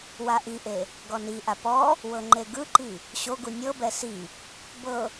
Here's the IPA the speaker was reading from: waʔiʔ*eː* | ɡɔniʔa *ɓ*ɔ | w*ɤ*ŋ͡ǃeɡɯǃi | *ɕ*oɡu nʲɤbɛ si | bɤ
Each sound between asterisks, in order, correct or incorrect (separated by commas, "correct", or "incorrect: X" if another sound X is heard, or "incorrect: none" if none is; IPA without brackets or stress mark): incorrect: e, incorrect: p, correct, correct